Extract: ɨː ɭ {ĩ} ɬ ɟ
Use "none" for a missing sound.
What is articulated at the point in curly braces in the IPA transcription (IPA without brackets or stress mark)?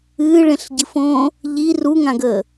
ẽ